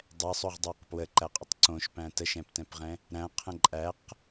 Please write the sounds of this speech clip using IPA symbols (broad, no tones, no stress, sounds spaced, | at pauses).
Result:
dˤ ɛ sˤ o ʁ dˤ æ q p w ə ǃ æ qʼ ə tˤ ǀ õ ʃ p æ̃ t ə ʃ ɛ̃ p t ɛ̃ p ʁ ɛ̃ | ɾ æ̃ qʰ ə̃ ǃʼ æ q